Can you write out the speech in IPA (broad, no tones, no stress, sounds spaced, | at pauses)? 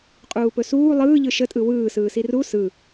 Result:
qʼ uː p ɵ s uː lˠ ɯː ʎ ɯ ʃ ə tʼ ɯ w ɯː s ɯː s i r u s ɯ